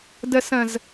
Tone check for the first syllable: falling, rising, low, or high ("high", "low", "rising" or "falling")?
low